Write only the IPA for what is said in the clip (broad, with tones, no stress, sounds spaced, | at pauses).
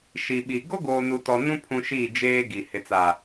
ʃ i˨ ɓ i˨ ɡ o˦ ɡ oː˨ n u˨ t ɔ˨ n ũ˦ pʰ ũ˦ ʃ i˦˨ d͡ʒ eː˦ ɡ i˨ h ɪ˨ t͡s a˨